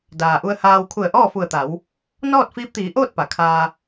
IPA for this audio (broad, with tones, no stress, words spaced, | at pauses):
daː˩ʔu˧ə̯haː˧w kʰu˧˩ə̯ʔɔː˥˨fu˧˩ə̯t̪a˩˧w | nɔː˥˨t̚fiː˧˥p̚t̪iː˩˧ʔoː˥˨t̚ pa˩˧kʰaː˧